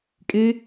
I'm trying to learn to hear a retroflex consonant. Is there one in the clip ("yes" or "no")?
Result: no